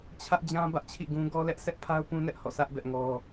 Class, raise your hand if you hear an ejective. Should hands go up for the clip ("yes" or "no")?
no